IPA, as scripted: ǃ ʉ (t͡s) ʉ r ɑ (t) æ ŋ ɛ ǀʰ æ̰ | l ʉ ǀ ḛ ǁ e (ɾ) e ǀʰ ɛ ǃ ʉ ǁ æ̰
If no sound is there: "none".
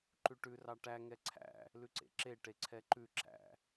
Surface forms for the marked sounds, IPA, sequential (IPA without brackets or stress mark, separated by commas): ʈ, ʈ, ʈ